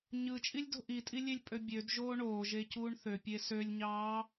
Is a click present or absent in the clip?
absent